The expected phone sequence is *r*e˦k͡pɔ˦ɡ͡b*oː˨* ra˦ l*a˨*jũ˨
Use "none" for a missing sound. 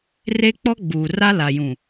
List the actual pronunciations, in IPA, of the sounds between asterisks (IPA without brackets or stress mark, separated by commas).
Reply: r, uː˨, a˨